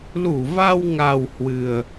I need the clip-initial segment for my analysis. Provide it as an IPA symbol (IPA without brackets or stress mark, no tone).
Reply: l